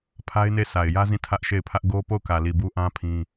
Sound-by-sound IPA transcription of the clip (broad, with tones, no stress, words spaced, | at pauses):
pʰa˦ɪ̯ne˦˨ sʰa˨ɪ̯jä˦zĩ˦˨ tʰä˦ʔʃe˦˨ɪ̯pʰä˦ʔ ɡo˦ po˦˨ʊ̯kä˨li˨ bu˦ʔã˦ pʰĩ˦